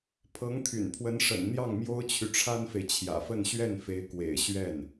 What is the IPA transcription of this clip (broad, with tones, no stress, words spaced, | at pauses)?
pʰɤ˧˥ŋt̪ʰy̰˨˩npʰwə˧˥n ʂə̰˨˩n n̪jɑ˥˩ŋmjo˥ʊ̯t͡ɕʰy˨ ʈ͡ʂʰa˥nfe˨ɪ̯t͡ɕʰjä̰˨˩fə˥˧n ɕɥɛ˥˩nfe˧˥ɪ̯kwḛ˨˩ɪ̯ ɕɥɛ˥˩n